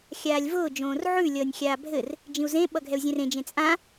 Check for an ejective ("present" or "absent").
present